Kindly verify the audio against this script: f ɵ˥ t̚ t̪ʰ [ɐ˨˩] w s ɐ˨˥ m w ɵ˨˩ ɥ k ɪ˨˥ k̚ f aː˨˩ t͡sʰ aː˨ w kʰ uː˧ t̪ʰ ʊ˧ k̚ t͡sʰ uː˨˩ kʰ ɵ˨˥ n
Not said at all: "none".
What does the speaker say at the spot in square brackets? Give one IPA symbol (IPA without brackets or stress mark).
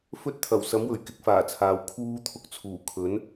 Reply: ɐ˨˩